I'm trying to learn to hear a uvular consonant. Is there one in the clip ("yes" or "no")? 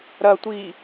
no